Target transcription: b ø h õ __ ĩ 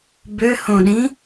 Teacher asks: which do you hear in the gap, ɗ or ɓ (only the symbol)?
ɗ